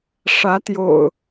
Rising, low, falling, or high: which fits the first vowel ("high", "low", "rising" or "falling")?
rising